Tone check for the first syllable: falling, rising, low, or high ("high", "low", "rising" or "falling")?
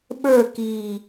falling